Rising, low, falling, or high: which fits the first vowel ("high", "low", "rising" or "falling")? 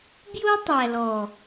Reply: high